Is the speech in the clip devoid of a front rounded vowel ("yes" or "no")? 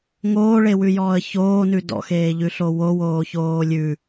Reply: yes